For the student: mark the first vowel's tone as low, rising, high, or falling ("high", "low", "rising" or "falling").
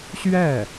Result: falling